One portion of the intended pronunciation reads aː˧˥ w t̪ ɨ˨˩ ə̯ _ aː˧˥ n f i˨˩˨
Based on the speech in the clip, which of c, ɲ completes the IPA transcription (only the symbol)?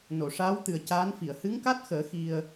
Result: c